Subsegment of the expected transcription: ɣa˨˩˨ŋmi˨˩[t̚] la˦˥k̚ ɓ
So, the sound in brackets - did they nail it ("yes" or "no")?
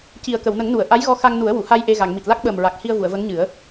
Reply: yes